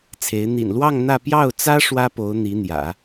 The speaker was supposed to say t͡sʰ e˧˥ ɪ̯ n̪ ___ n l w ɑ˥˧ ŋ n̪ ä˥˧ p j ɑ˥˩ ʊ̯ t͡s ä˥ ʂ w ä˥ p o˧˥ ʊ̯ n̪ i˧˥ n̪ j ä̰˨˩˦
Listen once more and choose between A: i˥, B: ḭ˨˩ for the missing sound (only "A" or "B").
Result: B